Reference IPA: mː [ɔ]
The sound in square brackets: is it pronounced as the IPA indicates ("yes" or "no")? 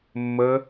no